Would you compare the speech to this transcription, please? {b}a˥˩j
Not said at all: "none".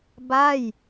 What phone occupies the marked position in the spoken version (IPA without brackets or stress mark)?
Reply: b